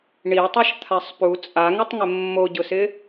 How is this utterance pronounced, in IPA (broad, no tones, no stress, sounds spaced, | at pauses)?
ɳ i tˤ ɛ ʃ t̪ʰ a sˤ p u t͡sʼ a ŋ ɪ tˤ ŋ ɪ mː o ɟ ʊ s ɪ